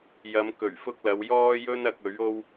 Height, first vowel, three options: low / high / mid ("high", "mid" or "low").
low